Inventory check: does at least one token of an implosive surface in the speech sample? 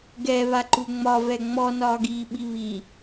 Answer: yes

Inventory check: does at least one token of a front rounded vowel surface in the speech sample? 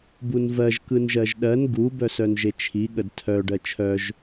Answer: yes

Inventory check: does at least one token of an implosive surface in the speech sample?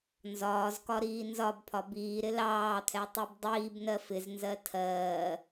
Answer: no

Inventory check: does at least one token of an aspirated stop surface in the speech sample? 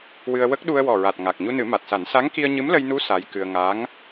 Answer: no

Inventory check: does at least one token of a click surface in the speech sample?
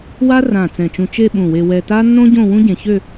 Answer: no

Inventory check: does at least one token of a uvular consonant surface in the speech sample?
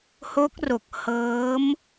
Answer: no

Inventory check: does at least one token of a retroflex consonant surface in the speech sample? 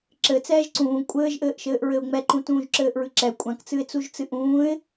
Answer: no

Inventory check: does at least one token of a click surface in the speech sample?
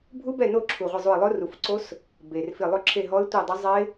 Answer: yes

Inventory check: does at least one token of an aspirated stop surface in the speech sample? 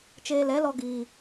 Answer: no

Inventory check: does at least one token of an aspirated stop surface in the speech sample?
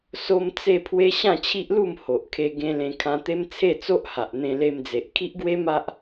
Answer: yes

